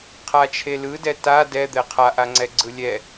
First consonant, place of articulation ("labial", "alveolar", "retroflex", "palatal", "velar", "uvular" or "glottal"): uvular